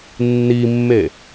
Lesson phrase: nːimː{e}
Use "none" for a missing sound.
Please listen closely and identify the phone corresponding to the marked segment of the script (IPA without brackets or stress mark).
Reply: e